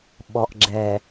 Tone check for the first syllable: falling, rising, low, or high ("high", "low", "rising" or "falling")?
low